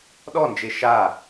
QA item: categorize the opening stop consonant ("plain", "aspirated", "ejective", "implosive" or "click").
implosive